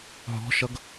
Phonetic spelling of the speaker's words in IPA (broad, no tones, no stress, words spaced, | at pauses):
ɦɔ̤ʃʌɡ